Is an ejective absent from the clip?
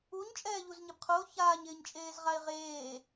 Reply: no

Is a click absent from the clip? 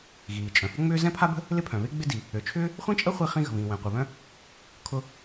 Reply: yes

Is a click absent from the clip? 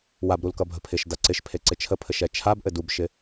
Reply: no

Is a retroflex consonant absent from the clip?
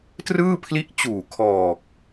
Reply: yes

